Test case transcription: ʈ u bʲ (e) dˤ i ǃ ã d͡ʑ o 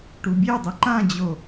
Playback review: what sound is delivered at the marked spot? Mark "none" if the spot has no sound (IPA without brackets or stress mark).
e